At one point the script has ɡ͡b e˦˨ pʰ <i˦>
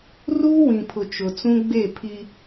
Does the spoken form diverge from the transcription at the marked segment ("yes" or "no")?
no